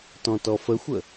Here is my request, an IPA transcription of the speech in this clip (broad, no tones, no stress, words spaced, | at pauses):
tɔ̃tɔfəxʷə